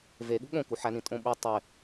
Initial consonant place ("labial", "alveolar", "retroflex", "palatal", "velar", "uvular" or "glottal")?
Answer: labial